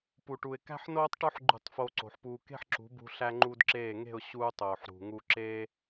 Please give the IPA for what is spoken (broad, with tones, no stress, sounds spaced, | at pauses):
p u˨ ʈ u˨ ɪ̯ k æ̤˦ ħ n oː˦ tˤ ʈ o˦ ħ ɡ͡ǃ ṳ˦˨ tˤ f oː˧ ǀ o̤˨ ħ p uː˧ k e̤˦ ħ ǁ ṳ˨˦ b ṳ˧ ɬ æ˦ ŋ͡ǃ uː˦ d ǁ eː˦˨ ŋ e̤˦˨ ʊ̯ ɕ uː˧ tˤ oː˨ ħ ɾ ṳ˨ ŋ u˦ ǁ e˦